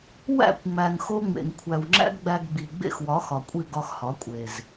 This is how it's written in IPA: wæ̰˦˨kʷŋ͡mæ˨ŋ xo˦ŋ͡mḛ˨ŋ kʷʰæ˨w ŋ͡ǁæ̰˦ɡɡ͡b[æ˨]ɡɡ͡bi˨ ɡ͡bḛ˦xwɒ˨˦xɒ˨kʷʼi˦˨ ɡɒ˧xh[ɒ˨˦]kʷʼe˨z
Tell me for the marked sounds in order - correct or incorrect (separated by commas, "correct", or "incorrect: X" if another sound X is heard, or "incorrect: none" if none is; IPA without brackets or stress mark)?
incorrect: æ˧, correct